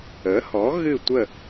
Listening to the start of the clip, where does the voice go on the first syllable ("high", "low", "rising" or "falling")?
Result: rising